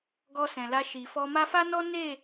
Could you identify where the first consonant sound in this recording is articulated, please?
velar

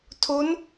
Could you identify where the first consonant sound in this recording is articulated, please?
alveolar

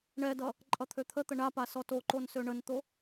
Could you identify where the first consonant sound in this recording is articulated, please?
retroflex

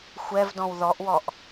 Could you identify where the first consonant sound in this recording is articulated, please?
velar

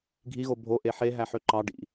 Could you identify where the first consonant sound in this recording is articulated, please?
velar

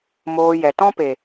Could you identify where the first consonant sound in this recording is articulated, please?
labial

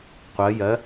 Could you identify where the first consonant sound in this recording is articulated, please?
uvular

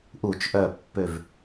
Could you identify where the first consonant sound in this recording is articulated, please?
glottal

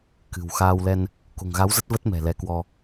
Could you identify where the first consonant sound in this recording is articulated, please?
velar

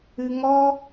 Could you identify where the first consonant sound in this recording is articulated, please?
velar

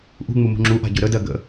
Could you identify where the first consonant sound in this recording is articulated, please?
glottal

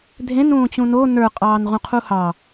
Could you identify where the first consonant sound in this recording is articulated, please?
alveolar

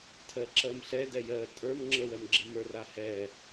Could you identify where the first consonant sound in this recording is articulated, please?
alveolar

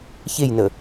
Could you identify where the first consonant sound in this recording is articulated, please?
palatal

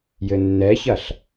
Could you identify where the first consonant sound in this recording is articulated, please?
palatal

